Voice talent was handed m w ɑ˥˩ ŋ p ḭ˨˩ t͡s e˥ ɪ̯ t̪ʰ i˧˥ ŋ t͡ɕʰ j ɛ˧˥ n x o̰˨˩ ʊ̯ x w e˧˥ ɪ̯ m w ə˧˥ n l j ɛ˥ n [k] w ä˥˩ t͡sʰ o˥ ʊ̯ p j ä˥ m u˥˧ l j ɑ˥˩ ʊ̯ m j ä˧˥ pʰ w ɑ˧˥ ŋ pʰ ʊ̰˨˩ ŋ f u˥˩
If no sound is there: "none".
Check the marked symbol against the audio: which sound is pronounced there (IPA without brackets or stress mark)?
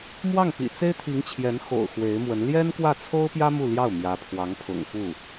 k